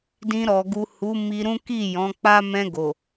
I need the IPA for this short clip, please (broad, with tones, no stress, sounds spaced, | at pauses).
d ĩ˧ ɾ ɔ˨ ɡ u˨ h u˨˦ m i˧ ɾ ũ˦ k i˦˨ j ɔ̃˨˦ k͡p a˦ m ɛ̃˧ ɡ o˨